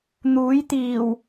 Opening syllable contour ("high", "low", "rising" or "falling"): rising